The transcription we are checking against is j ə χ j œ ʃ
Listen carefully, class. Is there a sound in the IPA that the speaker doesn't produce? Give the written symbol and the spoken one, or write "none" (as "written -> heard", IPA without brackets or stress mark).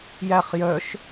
ə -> æ